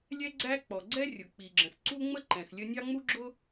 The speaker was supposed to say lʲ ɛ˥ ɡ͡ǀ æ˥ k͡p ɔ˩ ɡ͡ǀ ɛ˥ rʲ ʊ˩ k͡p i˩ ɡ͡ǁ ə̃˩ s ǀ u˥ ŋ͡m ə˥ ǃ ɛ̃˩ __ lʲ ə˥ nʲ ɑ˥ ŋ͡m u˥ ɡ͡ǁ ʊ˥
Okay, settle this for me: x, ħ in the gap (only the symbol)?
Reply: x